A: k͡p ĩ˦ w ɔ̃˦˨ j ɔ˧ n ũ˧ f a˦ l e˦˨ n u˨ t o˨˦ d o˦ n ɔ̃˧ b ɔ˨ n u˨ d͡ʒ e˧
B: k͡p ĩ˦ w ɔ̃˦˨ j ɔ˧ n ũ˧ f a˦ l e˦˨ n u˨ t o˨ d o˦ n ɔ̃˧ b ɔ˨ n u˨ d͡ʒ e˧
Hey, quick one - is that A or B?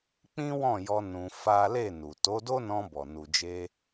A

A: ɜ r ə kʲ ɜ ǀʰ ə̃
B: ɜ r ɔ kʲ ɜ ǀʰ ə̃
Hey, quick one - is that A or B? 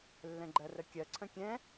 A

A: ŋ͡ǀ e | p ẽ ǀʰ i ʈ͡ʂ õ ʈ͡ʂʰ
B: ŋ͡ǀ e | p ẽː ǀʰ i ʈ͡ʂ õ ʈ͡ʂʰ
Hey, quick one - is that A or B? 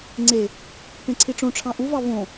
A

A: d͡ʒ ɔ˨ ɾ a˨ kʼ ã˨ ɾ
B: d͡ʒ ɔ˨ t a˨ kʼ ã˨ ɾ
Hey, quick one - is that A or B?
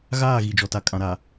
B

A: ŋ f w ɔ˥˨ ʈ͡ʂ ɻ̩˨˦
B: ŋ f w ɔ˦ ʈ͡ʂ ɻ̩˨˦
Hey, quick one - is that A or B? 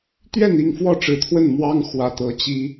A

